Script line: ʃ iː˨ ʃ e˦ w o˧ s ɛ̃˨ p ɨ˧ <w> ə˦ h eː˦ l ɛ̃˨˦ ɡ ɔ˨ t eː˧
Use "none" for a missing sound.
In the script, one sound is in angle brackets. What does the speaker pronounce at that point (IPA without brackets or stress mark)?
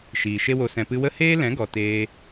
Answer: w